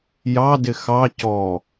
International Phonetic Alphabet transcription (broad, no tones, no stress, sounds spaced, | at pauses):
j ɑ d ɪ x ɑ c ɔ